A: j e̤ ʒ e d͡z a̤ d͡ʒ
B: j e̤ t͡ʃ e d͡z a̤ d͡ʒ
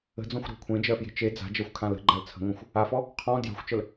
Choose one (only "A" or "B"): B